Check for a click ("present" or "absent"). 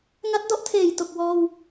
absent